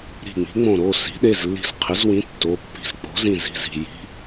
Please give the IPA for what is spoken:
ɾi̤˧˩ŋ͡mi̤˩˥ŋ͡mõ˧˩ ɾo˩˧˩ si̤˩˥ɗe˩˧˩zlːi̤˧˩z qʰɪ˩˥zwĩ˩˥ tːo˩˧˩pːi̤˧˩z k͡po̤˩˥zĩ˧˩zi̤˩˧˩zi̤˧˩ ji̤˩˧˩

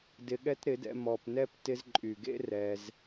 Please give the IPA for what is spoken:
dɪ˧ɠɛ˦tɾɪ˨˦dɛ̰˧ mɔ˨pnɛ˧p tɪ˧zǃʼy˨ɡḛ˦ rɛ˧z

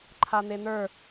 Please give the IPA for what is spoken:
ǃʰan̪en̪ə˞

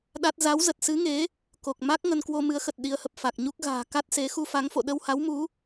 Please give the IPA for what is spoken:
ɗa˦˥t̚ za˨˦wzə˨˩t̚sɨ˨˦ŋe˨˦ | ko˨˩k̚ ma˦˥k̚ ŋə˧nkwo˧ mɨ˨˦ə̯xə˨˩t̚ ɗi˨˦ə̯hə˨˩p̚fa˨˩k̚ɲu˦˥k̚ ɣa̤ː˨˩ ka˦˥t̚se˨˦ xu˧fa˨˦ŋfo̰˧˨ ɗə˧wha˨˦wmu˨˦

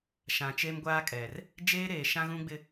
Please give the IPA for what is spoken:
ʃã˨t͡ʃe˦m ɡʷaː˦kʼɛ˨r | d͡ʒeː˦ɾeː˨ ʃã˦ɣũ˦ɡ͡bɪ˦

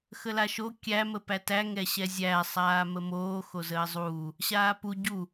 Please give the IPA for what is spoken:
xəlaʃo kʲæ məpætæ ŋɛɕɛzʲæ sˤaːməmoː xozəːzˤuː | ɕaːpu ɟu

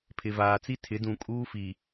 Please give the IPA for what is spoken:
pʰɪ˨vaː˨t͡si˦ tʰɪ˨˦dũ˨kʼuː˦fi˨

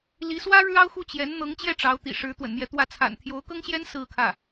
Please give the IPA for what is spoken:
li˧˥swä˥ ɻɻ̩˥ɑ˥ʊ̯xu˥˩ t͡ɕjɛ˧˥n n̪ɤ˧˥ŋt͡ɕjɛ˥˩ ʈ͡ʂɑ˧˥ʊ̯t̪ḭ˨˩ʂɻ̩˧˥ t̪wə̰˨˩nmjɛ˧˥t̪wä˥˩ t͡sʰa̰˨˩n t̪ʰjo˧˥ʊ̯kɤ˥ŋɕjɛ˥n sɹ̩˥˧kʰä˥˩

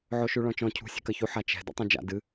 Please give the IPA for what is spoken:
ʕoʃuɭɔ̃t͡ʃɔ̃ cʰṳ sʲe̤kɐçu ħat͡ʃɛ̤ dɛ̰tˤõd͡ʒa̰ dɨ

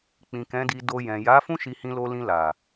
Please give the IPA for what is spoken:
k͡pĩ˨kɛ̃˨˦di˧do˧ jɛ̃˨ ja˨˦ fũ˦ʃi˧hĩ˧lo˧ lĩ˧la˨

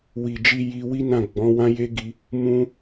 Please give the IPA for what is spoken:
wi˨d͡ʒi˧ ji˧wi˦nã˦˨ ɡ͡bɔ̃˨˦wã˦je˦ ɡi˦ | mũ˦

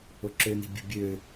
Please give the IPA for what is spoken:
oǁøni̤ bʲə̤ bʲø

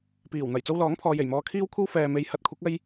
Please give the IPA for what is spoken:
piː˨˩wn̪ɐ˨˩j t͡so˧wlɔː˨˥ŋpʰɔː˨je˨˩j mɔː˨˧kʰiː˥wkʷʰɐ˥w fɛː˨me˨˧j hɐ˨˥t̚kʷʰɐ˨˥k̚ ɐ˥j

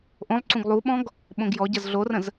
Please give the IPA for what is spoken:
ʔõlˠǀũɡ lˠuɓɔ̃ɡ | ɓõɡjɔɟɐz ɮorə̃z

